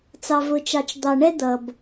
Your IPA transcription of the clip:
t͡s ɑ˨ v ʊ˨ t͡ʃ ɑ˨ t͡ʃ d̪ ɑ˨ ɳ ɛ˦ d̪ ʌ˨ b

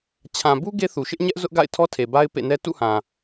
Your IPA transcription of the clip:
t͡ɕʰ ã˨ b u˦ ɡ e˦ θ u˨ ʃ ɪ˦ ʔ ɲ ɛ˦ ʔ z ʊ˦ ʔ ɡ a̰˦˨ ɪ̯ tʰ ɔ˦ tʰ e˨ b a˦ ɪ̯ p ḛ˦˨ n ɛ˦ t ṵ˦˨ h ã˨

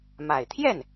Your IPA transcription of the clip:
m a˨˩ ɪ̯ t̪ʰ j ɛ˥˩ n

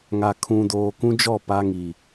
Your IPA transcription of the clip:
ŋ a˨ kʰ ũ˨ d oː˨ k ũ˦ d͡ʒ ɔ˦˨ p a˦ ŋ i˨

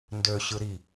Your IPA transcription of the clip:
n d ø ɕ ɯ ɾ i

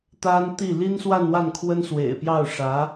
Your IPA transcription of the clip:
t̪ a˥ n t̪ i˥˩ l i˥ n s w a˥˧ n w a˥˩ n kʰ w ə˥ n s w ḛ˨˩ ɪ̯ p j ɑ˥˩ ʊ̯ ʂ ä˧˥

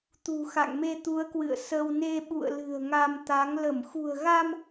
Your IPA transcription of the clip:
t̪ ṳ˨˩ x a̰˧˨ ŋ m e˧ t̪ u˨˦ ə̯ k w ɨ̰˧˨ ə̯ s ə˧ w n e˧ ɓ ṵ˧˨ ə̯ l ɨ̤˨˩ ə̯ ŋ a˧ m t̪ a˨˦ ŋ l ə˧˩ m x ṳ˨˩ ə̯ ɣ a˧ m

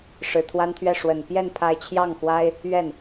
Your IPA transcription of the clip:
ʂ ɻ̩˨˩ t̪ʰ w a˥ n t̪ʰ ɥ ɛ˥˩ ʂ w ə˨˩ n p j ɛ˥˧ n pʰ a˥˧ ɪ̯ t͡ɕʰ j ɑ˥˩ ŋ x w a˥ ɪ̯ | ɥ ɛ˥˩ n

